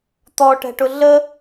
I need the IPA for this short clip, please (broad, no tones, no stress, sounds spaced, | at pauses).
t̪ ɔ ʈ ɛ̤ ʈ ʊ ɮ ə